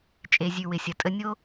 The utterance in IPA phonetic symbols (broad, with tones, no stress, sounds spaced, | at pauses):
t͡ʃʼ e˨ zʲ ʉ˨ w ɪ˨ sʲ ɐ˨ tʼ ə˦ nʲ o˦